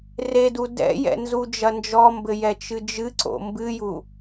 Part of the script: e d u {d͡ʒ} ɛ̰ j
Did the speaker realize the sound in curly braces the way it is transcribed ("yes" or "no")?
no